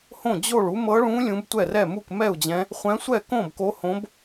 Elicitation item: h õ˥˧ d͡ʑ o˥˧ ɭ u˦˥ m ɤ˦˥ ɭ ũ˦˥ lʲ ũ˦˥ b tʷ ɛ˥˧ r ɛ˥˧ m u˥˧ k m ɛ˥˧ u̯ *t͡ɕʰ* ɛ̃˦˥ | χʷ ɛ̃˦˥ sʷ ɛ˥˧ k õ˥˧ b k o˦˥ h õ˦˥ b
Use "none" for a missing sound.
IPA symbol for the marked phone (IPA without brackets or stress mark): d͡ʑ